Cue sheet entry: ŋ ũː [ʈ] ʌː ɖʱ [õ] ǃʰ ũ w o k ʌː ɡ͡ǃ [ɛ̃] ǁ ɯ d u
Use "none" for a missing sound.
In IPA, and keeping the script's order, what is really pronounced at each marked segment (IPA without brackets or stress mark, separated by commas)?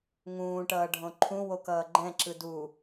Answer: ʈ, õ, ɛ̃